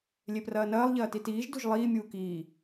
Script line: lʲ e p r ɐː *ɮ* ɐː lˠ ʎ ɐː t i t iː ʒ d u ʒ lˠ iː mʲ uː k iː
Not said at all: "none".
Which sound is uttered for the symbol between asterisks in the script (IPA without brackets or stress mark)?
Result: n